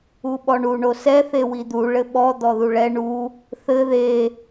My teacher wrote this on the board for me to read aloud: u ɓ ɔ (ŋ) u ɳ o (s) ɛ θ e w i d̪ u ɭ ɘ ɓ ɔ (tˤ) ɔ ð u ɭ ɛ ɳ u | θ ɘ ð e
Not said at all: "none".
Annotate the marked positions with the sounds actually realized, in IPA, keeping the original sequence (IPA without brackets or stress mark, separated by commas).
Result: ɳ, s, d̪